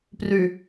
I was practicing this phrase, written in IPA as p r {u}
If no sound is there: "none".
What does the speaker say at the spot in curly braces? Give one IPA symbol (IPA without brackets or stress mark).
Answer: y